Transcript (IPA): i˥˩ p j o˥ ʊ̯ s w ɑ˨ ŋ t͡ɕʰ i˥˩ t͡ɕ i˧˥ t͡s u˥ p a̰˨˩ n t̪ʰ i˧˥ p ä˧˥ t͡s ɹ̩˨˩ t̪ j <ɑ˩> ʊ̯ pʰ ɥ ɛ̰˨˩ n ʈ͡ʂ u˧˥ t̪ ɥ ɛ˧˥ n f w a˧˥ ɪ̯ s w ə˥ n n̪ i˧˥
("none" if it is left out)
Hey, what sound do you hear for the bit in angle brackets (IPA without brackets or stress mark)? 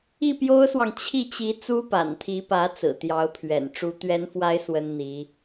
ɑ˧˥